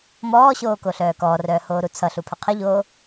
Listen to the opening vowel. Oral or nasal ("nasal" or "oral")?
oral